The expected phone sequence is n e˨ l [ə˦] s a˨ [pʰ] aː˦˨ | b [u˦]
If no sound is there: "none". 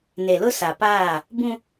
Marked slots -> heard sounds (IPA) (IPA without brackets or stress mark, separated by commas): ʊ˦, p, ũ˦